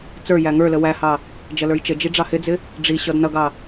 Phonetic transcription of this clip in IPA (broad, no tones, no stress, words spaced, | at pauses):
t͡sə˞ jæŋə˞lə wæhɑ | d͡ʒʌlə˞jt͡ʃəd͡ʒi ɖ͡ʐɑhɪd͡zɪ | ɖ͡ʐi ɕɔdnʌɡɑ